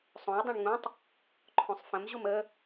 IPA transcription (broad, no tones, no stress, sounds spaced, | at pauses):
sˤ õ i̯ dˤ õ ɳ ŋ ũ tˤ | ǃʰ õ sˤ f ə̃ m ʑ u m ə